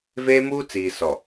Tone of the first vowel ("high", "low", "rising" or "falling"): high